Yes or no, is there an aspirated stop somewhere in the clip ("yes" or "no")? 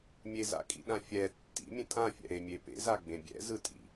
no